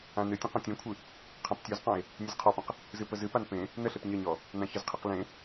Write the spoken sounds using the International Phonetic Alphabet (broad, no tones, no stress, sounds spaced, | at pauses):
ã n ɨ tʲ ə̃ q ɔ̃ tʲ ẽ kʷʰ ɨ | qʰ ã p tʲ ɔ z q ɔ̃ e̯ | nʲ ə z qʰ ɔ p ə̃ q | z ɨ p ə z ɨ p a n p ẽ | n ə ɬ e p ɲ ə ɲ ɔ | n ã ç ə z qʰ e q l ẽ